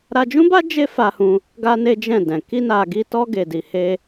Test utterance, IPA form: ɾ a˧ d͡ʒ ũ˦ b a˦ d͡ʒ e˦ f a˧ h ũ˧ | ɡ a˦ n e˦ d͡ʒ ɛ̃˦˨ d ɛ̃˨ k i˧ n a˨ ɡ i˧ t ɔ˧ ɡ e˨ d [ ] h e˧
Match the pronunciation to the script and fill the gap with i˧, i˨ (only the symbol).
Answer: i˨